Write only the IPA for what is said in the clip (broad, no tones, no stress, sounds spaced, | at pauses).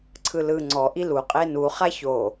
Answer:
ǀʰ ɯ l ɯ ŋ͡ǀ ɔ ʔ i l u qʼ e n u χ a ç o